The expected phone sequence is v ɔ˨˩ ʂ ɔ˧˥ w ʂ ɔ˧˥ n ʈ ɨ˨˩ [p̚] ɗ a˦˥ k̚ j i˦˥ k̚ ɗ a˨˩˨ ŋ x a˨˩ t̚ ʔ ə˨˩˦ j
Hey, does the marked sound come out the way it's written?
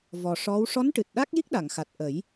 no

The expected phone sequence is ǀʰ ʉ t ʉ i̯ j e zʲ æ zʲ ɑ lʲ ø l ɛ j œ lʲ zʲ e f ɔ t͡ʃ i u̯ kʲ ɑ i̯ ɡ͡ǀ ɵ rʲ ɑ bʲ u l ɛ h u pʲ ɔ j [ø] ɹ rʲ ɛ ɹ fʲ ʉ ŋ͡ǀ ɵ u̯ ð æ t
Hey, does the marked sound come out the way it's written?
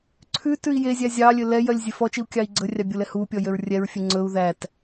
yes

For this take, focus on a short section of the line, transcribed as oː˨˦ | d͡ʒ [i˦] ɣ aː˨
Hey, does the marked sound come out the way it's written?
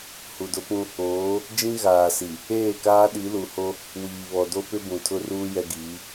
no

